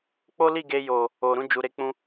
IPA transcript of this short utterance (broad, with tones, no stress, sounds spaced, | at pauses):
k͡p o˦ l i˦˨ ɡ e˧ j o˨ | o˨ ɾ ũ˧ d͡ʒ u˨ ɾ e˧ k͡p ũ˧